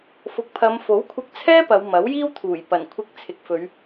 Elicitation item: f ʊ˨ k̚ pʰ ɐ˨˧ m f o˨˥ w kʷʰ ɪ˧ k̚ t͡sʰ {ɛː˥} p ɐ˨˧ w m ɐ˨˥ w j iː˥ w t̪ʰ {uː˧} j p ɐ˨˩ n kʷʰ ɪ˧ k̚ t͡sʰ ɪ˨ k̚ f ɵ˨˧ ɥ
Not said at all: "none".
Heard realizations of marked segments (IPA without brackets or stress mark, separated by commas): ɛː˥, uː˨˩